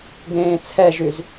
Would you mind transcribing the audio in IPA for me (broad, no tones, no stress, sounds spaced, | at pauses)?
ɡ ẽː t͡sʰ ɛ ʒ y z